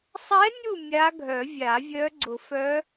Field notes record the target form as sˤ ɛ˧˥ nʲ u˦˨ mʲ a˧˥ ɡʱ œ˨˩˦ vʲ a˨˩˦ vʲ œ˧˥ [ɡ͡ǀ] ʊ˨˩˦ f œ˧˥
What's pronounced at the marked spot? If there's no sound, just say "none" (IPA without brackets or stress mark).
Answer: ɡ͡ǀ